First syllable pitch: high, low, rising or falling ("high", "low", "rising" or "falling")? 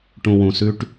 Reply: low